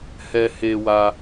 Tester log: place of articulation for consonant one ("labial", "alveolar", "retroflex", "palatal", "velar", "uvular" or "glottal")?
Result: glottal